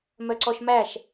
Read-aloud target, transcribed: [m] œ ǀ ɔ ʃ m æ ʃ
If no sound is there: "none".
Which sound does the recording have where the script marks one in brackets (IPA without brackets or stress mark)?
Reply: m